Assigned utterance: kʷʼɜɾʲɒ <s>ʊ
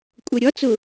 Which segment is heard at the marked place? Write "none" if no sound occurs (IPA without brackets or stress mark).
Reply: t͡s